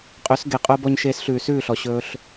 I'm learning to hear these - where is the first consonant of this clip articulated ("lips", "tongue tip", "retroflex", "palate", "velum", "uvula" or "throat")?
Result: uvula